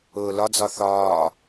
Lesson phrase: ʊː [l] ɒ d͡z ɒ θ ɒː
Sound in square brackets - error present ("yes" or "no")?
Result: no